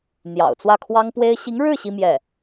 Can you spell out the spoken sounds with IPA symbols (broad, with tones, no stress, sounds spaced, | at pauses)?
n̪ j ɑ̰˨˩ ʊ̯ t͡s w ä˥˩ kʰ w ɑ˥ ŋ p w e˥ ɪ̯ ɕ i˧˥ ŋ ɻ ɻ̩˥˩ ɕ i˥ m j ɛ˥˩